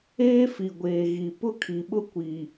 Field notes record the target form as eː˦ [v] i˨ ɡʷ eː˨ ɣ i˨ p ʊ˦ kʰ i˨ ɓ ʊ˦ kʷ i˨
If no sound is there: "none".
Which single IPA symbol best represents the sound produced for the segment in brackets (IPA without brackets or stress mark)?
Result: f